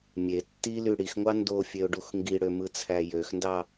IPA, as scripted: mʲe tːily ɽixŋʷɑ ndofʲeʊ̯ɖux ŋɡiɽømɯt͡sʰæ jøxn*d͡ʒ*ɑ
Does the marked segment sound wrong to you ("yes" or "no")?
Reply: yes